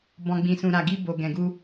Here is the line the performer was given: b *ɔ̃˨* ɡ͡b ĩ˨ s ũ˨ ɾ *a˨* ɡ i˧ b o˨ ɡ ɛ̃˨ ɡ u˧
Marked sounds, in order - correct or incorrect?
correct, correct

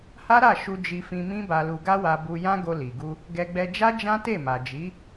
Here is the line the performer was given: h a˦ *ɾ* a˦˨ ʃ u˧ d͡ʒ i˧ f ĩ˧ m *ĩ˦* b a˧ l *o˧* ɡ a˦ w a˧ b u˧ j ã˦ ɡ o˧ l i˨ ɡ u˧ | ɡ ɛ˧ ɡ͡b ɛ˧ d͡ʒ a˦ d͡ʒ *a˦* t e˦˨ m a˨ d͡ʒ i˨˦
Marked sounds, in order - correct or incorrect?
correct, correct, incorrect, incorrect

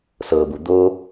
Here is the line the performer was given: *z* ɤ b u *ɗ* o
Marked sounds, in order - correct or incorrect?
incorrect, incorrect

